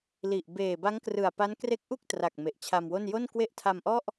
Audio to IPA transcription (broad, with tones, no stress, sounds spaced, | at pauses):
l i˨˩ ʔ b eː˨˩ b a˦˥ ŋ k r ɯ˨˩ a̯ p a˦˥ n k r e˦˥ k̚ ʔ u˥˩ k̚ t r a˨˩ k̚ m e˨˩ ʔ t͡ɕʰ a˧ m w o˥˩ n j o˥˩ n k w e˥˩ ʔ tʰ a˧ m ʔ ɔ˥˩ ʔ